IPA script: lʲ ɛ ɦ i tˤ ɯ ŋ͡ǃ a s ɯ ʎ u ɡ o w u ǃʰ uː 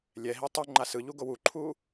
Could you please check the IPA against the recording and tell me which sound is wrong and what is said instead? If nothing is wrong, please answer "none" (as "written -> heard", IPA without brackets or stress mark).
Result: none